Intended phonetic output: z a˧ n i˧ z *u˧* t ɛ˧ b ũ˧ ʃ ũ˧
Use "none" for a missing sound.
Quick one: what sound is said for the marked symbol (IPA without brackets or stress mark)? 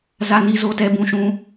o˧